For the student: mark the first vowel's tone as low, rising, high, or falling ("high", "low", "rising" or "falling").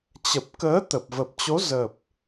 low